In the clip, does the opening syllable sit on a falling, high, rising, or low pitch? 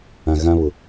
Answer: low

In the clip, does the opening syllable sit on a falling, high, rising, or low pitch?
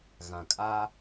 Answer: low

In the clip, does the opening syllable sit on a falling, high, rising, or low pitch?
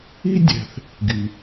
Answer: high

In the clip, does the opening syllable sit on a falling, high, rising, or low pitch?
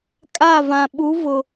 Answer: falling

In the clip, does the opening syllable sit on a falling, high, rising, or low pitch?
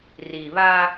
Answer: low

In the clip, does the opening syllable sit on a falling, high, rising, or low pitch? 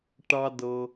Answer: high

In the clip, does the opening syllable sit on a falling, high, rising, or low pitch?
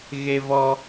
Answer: high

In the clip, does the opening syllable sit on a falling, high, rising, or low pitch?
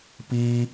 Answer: high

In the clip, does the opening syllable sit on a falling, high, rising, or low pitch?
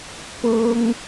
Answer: high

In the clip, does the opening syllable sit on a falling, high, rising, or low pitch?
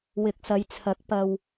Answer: low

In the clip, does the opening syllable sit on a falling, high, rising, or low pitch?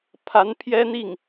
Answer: rising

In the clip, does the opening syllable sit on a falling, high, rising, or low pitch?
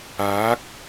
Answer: rising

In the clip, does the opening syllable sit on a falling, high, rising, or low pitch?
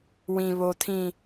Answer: low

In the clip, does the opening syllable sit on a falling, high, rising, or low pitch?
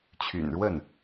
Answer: low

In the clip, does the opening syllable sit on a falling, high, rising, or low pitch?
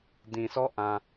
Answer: low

